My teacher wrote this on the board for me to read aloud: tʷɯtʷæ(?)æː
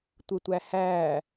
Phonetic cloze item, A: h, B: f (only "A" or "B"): A